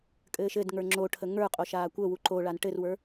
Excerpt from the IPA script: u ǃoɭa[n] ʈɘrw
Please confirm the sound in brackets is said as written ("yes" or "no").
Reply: yes